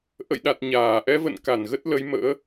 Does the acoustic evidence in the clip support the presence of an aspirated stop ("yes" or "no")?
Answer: no